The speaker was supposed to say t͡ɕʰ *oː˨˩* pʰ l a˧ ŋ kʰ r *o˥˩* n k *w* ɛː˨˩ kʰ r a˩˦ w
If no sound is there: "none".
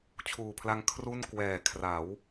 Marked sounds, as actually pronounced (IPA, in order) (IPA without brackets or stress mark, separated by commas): uː˨˩, u˥˩, w